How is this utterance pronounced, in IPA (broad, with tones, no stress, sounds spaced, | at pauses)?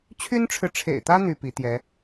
t͡ɕʰ y˥ n ʈ͡ʂʰ ɻ̩˨ ʈ͡ʂʰ ḛ˨˩ ɪ̯ t̪ ä˥ n̪ y˥ p i˧˥ t̪ j ɛ˧˥